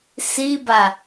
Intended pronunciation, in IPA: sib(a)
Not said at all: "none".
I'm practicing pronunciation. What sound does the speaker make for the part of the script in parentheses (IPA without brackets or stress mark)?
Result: a